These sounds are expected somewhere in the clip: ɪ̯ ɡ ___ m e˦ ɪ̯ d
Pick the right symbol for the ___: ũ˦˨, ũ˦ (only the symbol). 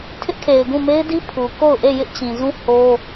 ũ˦˨